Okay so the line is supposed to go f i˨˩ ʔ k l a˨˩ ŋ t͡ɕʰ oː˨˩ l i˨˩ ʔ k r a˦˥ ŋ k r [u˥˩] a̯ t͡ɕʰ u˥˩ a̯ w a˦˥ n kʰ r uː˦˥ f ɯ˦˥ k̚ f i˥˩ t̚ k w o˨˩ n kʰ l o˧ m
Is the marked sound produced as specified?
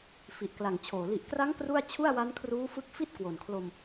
yes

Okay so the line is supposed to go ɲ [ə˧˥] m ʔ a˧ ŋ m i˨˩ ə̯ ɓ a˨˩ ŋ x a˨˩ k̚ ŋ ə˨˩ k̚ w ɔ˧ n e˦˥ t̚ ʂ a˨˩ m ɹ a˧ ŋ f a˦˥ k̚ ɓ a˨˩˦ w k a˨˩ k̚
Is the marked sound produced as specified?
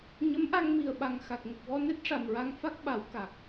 yes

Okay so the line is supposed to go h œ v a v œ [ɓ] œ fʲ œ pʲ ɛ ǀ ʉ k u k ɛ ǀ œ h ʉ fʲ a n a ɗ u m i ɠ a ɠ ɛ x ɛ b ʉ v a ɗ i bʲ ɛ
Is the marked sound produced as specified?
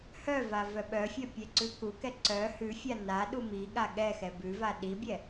yes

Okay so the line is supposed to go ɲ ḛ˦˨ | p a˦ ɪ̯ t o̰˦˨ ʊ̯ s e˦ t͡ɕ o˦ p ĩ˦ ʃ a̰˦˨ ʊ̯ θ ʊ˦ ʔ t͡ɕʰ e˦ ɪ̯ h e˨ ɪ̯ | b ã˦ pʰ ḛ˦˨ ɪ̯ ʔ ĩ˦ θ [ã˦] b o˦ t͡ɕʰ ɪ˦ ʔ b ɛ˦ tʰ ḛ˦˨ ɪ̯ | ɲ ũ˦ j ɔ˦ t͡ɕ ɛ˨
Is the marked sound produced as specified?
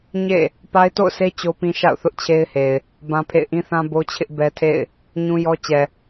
yes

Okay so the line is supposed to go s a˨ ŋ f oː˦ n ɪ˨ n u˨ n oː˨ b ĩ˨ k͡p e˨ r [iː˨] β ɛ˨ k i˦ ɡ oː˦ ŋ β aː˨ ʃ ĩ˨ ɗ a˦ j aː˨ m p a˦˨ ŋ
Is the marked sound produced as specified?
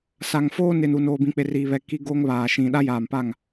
yes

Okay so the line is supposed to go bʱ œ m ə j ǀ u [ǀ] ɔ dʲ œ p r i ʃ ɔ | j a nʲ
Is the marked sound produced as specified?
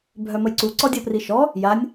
yes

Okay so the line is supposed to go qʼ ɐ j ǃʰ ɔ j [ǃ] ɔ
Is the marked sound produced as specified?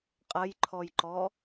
yes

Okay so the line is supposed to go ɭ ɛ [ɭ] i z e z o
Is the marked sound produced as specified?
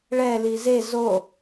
no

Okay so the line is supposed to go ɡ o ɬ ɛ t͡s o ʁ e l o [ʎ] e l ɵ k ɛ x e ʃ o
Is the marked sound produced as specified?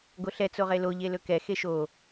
yes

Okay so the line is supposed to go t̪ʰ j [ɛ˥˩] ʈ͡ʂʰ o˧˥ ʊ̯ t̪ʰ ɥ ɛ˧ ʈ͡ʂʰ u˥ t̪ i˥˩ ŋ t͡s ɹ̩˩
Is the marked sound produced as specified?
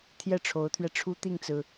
yes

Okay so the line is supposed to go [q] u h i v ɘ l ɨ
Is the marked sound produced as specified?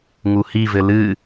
no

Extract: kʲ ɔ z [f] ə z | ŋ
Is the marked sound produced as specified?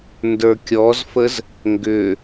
yes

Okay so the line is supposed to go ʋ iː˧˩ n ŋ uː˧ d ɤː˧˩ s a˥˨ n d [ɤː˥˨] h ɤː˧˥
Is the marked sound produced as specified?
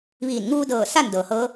no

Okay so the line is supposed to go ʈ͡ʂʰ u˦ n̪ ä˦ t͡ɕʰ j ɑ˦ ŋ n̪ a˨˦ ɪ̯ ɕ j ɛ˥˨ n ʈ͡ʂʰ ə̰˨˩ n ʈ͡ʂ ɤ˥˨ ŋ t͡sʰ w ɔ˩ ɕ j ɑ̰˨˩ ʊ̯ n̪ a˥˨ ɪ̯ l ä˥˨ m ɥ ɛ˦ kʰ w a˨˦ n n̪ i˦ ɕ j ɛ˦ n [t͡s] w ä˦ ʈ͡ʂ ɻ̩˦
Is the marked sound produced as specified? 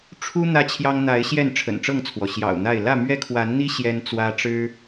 yes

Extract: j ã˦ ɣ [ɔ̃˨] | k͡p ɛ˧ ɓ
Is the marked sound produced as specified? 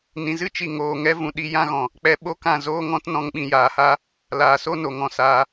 yes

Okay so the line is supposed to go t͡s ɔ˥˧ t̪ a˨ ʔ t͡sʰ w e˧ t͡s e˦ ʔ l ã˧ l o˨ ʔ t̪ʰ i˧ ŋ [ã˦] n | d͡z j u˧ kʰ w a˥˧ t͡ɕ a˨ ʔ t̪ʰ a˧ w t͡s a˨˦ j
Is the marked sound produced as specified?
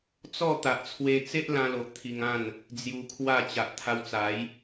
no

